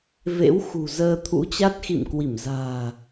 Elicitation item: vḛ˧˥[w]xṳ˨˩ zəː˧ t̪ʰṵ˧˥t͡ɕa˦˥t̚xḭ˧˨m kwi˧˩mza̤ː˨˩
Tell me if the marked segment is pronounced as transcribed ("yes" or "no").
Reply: yes